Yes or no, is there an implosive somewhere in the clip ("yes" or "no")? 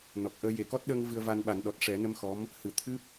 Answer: yes